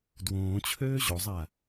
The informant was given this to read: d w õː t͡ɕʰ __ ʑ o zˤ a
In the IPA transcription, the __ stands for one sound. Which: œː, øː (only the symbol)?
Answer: øː